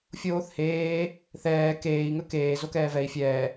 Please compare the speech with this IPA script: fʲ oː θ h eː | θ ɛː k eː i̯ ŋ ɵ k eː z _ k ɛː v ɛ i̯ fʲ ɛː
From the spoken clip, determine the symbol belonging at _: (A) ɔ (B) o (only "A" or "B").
B